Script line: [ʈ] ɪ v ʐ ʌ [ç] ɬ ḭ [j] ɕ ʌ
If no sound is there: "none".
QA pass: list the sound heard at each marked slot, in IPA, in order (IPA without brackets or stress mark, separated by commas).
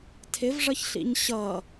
tʰ, ç, ɲ